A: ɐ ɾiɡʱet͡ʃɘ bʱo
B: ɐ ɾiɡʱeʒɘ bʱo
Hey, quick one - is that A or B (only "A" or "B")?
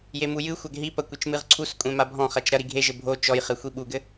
B